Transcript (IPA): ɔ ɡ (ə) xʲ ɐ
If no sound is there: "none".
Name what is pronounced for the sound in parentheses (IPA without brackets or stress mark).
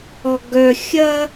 œ